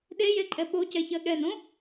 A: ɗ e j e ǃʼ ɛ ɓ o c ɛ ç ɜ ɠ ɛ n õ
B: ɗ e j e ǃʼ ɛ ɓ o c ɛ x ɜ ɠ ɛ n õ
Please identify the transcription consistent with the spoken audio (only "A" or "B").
A